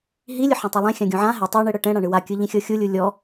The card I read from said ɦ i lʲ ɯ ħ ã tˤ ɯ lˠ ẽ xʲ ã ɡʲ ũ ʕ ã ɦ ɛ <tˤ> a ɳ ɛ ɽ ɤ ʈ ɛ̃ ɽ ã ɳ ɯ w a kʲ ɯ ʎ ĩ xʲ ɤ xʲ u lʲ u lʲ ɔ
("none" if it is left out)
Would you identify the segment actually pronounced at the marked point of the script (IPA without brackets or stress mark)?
tˤ